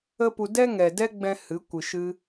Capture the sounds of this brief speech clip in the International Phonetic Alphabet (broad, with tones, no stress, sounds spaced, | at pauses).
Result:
ə˦ p u˧ d ɛ˦ ŋ ɛ˨ d ɛ˦ ɡ͡b ɛ̃˦ h ɨ˨˦ kʷ ɨ˨ ʃ ɨ˧